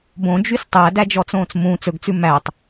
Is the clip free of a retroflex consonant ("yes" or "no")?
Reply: yes